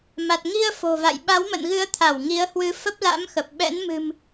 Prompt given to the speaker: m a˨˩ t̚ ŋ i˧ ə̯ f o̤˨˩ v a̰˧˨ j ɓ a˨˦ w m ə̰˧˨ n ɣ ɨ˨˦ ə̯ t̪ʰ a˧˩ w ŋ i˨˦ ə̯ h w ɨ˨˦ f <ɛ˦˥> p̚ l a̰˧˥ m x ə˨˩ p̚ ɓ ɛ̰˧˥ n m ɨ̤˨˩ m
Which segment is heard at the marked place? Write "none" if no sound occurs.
ə˦˥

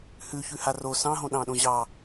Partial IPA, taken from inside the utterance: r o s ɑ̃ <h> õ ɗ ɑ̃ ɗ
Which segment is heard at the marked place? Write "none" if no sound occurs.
ɦ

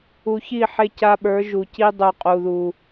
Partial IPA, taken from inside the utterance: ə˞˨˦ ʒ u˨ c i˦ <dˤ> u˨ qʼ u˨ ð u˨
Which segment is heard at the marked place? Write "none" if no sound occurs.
dˤ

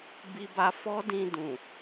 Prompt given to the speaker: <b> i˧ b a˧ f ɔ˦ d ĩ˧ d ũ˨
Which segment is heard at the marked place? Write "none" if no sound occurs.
b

